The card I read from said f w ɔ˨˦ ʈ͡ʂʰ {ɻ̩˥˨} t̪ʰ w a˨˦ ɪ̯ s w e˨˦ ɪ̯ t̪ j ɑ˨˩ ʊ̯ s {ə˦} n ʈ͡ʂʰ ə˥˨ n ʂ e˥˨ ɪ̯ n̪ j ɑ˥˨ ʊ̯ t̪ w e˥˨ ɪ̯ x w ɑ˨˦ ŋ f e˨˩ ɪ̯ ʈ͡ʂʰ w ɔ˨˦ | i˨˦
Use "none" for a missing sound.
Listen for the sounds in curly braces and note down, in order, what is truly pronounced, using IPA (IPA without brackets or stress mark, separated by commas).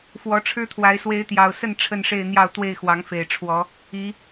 ɻ̩˦, ə˥˨